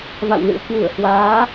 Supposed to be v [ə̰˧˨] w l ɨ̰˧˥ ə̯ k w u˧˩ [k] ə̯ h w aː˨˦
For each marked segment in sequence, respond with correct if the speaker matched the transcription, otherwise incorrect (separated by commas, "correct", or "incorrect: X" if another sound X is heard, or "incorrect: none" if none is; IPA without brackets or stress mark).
incorrect: a̰˧˨, incorrect: none